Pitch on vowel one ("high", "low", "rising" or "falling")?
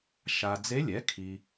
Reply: low